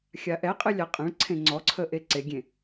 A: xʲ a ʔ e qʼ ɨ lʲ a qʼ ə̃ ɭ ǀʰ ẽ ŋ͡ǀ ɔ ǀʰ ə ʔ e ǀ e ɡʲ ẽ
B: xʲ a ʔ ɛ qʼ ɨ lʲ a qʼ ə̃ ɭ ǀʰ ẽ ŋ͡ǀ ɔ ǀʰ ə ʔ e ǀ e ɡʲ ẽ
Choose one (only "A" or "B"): B